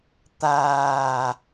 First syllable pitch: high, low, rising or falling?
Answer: low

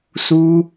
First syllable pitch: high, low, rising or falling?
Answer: high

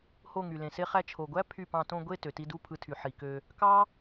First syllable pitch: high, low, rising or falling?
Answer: falling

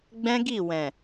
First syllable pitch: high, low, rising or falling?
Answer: high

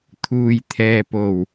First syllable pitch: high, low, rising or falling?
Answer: low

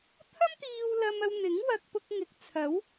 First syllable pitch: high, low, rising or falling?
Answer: high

